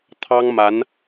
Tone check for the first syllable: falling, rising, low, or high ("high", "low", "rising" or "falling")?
high